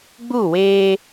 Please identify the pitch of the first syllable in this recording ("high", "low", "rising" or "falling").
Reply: falling